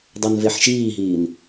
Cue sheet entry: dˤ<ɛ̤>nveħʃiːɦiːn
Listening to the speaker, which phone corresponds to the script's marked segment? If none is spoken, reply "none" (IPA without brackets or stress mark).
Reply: ɛ